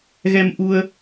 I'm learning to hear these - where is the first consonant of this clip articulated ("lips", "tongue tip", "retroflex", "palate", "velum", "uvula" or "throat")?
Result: velum